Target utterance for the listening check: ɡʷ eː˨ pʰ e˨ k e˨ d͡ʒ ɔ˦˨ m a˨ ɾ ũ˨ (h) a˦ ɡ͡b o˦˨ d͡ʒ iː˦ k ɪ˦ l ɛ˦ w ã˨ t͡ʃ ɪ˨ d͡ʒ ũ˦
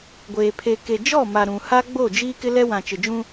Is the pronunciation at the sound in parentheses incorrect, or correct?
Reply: correct